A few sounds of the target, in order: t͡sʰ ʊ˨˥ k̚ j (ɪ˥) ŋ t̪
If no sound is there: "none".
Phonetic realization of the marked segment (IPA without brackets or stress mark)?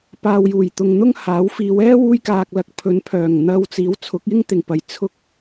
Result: ɪ˥